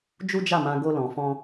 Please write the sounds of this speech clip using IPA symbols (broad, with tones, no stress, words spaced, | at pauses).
d͡ʒu˦d͡ʒa˦˨mã˧ ɡo˦lɔ̃˧fɔ̃˦